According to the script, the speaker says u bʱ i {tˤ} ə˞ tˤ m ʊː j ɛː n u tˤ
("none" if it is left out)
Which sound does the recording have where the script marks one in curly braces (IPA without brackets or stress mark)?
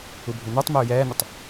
n